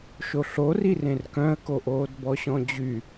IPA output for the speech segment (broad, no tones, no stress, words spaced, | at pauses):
ʃoɬori rẽrkœ̃ə̯koʔoːd bɔɕɔ̃d͡ʑy